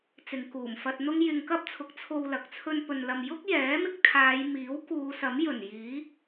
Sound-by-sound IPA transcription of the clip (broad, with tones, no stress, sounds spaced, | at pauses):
t͡s ɪ˨˧ ŋ k uː˨˩ m f ɐ˧ t̚ n̪ ʊ˥ ŋ j ɪ˧ ŋ k ɐ˥ p̚ t͡sʰ ʊ˨˥ k̚ t͡sʰ o˧ w l ɐ˨˥ k̚ t͡sʰ ɵ˥ n p ɵ˧ n l ɐ˧ m j ʊ˥ k̚ j ɛː˨˥ m ɪ˧ k̚ t̪ʰ aː˨˧ j m iː˨˥ w k uː˨˧ s ɐ˨˥ m j ɵ˨˩ n j iː˨˥